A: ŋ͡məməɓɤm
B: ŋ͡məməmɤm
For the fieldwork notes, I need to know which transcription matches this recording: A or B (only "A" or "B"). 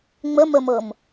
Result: B